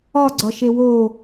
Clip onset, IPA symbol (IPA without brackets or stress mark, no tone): ɒ